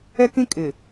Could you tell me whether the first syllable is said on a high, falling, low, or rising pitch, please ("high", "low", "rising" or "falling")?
high